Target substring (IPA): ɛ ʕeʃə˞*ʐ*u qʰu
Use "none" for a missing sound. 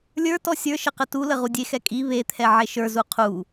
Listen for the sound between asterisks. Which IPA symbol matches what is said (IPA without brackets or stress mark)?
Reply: z